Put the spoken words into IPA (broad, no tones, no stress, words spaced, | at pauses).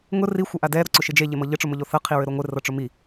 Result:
ŋʊ ri xʷɘʔadɛ ɾoǀʊʃɪd͡ʒe ʎemɤʎɘ ʈ͡ʂʊmʊʎoθɤ qʰiɹɘɾoŋʷɪ rɤʈ͡ʂʊmi